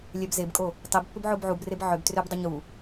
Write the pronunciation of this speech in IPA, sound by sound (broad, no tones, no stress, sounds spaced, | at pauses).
lʲ ɛ b z e b kʼ o | tˤ i b pː ʏ b ʕ o b ʕ u b r e b ʕ ʏ b t r ʏ b dˤ ʏ ɲ u